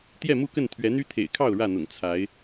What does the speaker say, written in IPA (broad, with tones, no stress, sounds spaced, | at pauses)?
t̪ j ɛ˥˨ m u˥˨ k ə˥˨ n t̪ʰ ɥ ɛ˨˦ n̪ y˦ t̪ʰ ḛ˨˩ ɪ̯ kʰ ɑ˥˨ ʊ̯ ɻ ä˥˨ n̪ ʊ̰˨˩ ŋ t͡sʰ a˨˦ ɪ̯